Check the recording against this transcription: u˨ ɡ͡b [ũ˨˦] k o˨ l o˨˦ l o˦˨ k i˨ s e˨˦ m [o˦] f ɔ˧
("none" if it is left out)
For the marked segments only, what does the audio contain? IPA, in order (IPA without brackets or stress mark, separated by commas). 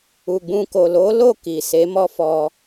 ũ˧, ɔ˦